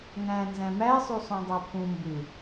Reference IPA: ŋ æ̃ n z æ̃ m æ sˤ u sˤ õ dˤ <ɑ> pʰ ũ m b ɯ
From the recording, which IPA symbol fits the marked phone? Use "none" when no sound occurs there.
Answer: ɑ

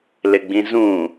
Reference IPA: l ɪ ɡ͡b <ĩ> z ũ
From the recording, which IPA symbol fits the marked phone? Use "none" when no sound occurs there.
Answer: ĩ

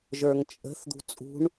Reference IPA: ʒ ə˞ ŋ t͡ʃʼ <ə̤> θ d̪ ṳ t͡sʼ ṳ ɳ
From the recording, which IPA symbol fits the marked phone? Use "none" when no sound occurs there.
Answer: ə̤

